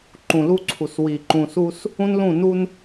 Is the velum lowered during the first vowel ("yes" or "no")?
yes